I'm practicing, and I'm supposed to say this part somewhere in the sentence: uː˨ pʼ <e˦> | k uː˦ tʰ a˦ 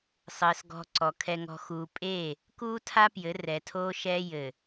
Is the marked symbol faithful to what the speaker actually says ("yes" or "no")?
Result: no